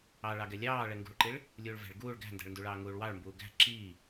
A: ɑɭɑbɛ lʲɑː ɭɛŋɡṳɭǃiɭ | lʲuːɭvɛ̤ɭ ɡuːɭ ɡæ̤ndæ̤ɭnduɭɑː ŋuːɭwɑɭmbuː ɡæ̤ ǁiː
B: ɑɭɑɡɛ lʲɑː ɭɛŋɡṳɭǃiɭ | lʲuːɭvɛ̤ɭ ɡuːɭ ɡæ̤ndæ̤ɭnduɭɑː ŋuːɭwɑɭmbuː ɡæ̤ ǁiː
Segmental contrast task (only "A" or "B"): B